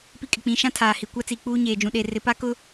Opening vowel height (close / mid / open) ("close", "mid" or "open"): close